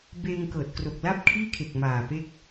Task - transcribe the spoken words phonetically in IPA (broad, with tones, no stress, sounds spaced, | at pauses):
b eː˧ ŋ k ɤː˨˩ t̚ k r o˨˩ k̚ l a˥˩ p̚ kʰ iː˥˩ kʰ e˨˩ k̚ m aː˨˩ p e˦˥ k̚